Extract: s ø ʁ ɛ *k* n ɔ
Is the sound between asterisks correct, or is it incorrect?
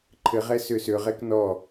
correct